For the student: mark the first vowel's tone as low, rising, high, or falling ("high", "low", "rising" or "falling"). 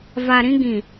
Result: low